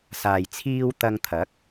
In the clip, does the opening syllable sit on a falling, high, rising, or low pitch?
low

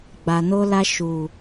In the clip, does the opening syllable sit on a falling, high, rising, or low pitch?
low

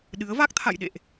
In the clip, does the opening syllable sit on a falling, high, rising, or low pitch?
rising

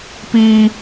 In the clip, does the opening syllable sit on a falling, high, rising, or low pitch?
high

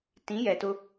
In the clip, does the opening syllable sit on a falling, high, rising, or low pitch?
rising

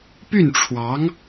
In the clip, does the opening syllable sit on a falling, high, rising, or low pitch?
falling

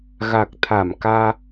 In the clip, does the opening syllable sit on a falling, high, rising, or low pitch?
low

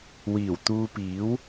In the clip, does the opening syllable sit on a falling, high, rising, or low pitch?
low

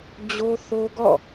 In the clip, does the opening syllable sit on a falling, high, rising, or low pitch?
high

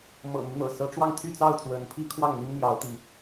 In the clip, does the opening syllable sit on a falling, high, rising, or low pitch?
low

